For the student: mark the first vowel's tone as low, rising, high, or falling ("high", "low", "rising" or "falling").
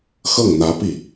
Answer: falling